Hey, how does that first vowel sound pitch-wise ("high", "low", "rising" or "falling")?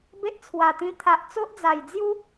high